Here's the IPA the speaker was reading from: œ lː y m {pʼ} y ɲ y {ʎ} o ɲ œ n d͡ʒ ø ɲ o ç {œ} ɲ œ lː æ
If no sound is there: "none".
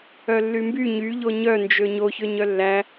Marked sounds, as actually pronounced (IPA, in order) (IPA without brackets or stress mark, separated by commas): b, ʎ, ø